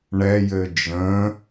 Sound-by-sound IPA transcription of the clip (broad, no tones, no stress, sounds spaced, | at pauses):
ɳ ɛ j ɘ d͡ʒ ə̃